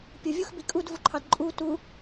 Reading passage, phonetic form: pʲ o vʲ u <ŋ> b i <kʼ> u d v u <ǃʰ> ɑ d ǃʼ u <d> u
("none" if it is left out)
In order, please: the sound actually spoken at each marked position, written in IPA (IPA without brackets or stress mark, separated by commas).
x, kʼ, ǃʰ, t